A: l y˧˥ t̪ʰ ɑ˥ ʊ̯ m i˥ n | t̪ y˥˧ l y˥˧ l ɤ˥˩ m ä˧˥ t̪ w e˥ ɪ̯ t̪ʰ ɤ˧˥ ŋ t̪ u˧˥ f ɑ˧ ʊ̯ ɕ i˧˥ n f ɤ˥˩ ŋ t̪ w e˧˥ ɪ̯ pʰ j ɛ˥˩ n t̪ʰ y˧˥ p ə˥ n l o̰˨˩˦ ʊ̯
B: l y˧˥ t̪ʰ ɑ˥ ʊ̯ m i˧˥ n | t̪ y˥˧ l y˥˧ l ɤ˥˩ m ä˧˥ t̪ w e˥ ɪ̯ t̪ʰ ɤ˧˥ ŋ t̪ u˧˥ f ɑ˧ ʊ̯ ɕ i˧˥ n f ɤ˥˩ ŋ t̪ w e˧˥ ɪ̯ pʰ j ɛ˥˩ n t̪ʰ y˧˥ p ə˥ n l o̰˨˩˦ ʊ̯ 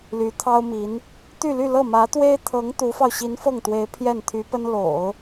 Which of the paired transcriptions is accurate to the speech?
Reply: B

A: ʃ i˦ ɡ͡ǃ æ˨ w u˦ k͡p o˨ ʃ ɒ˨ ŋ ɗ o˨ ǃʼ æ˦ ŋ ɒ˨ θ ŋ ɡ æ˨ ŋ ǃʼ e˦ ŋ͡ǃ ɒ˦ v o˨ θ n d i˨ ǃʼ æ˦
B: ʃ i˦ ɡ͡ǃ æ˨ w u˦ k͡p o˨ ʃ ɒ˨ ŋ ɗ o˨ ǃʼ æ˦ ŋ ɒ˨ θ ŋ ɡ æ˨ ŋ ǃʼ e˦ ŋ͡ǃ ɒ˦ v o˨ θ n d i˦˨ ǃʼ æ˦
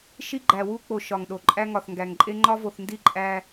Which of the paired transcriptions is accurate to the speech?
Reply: B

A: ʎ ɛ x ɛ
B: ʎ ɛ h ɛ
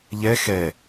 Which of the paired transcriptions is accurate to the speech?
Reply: A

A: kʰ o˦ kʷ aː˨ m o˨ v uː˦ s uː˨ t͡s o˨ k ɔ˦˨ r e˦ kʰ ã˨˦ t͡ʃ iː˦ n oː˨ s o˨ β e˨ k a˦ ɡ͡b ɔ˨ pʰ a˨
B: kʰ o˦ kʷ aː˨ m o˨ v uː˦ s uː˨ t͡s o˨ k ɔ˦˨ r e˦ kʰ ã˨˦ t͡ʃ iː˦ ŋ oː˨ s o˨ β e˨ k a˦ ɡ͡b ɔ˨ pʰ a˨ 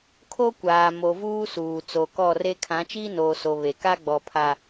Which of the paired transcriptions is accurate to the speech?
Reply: A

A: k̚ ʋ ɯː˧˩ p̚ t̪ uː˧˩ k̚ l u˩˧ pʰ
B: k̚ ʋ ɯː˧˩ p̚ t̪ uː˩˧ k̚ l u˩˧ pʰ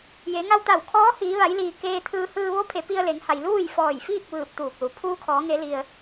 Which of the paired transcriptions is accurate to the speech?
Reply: A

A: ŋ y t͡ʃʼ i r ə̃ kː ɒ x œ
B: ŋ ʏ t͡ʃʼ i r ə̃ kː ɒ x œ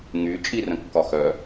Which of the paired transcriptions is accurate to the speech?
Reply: A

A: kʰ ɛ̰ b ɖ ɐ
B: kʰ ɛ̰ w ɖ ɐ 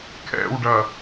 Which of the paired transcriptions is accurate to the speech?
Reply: B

